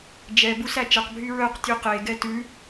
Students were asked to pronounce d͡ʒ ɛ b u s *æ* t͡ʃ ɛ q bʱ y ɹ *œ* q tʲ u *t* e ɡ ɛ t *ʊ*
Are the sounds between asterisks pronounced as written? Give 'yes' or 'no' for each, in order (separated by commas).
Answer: yes, yes, no, no